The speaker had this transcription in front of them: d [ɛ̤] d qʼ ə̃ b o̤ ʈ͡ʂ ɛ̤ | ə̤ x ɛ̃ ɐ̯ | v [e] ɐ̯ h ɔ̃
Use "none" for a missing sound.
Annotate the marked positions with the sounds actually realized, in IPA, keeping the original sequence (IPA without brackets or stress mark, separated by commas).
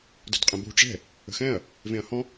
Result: ə̤, ẽ